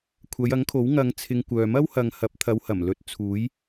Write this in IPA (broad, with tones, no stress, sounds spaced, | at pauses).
kʷʰ ɐ˨˧ j ɐ˨˥ ŋ kʰ o˨˥ w ŋ ɐ˧ ŋ t͡sʰ ɪ˧ ŋ kʷ œː˨ m ɐ˥ w h ɐ˨ ŋ h ɐ˨˥ p̚ t̪ʰ ɐ˨˧ w h ɐ˨˩ m l ɵ˨˥ t̚ t͡sʰ uː˨˥ j